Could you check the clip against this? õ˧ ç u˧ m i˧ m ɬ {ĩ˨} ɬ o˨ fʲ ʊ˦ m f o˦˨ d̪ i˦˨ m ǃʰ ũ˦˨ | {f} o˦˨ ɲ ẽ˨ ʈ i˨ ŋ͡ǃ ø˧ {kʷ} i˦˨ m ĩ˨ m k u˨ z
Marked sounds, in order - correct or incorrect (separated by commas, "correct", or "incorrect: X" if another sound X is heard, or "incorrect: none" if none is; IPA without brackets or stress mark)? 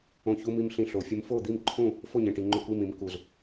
incorrect: ĩ˧, correct, correct